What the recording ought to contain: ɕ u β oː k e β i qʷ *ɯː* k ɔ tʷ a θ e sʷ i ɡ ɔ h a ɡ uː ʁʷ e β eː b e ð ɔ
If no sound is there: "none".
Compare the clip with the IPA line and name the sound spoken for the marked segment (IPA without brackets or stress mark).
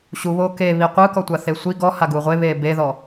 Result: ɯː